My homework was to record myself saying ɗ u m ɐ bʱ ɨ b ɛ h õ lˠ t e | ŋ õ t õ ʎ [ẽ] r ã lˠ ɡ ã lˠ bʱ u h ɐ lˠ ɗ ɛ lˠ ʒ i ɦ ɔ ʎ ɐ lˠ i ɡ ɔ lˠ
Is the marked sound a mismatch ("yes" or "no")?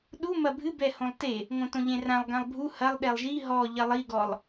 no